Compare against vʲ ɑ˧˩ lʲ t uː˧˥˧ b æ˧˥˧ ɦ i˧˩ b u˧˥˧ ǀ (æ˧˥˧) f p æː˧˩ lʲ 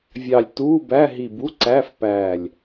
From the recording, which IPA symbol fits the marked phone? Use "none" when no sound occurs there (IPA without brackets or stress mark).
æ˧˥˧